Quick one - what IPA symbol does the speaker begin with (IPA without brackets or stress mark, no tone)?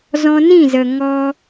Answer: z